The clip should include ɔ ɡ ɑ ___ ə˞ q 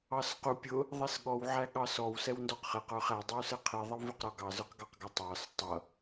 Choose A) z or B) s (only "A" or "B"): A